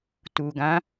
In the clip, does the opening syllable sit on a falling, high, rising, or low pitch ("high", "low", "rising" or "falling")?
low